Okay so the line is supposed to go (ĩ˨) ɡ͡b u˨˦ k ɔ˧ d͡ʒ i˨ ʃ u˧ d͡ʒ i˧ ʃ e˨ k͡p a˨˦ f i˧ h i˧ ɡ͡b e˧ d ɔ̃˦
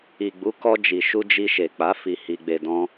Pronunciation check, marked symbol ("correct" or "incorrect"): incorrect